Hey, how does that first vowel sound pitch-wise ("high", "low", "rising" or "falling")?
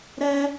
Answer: high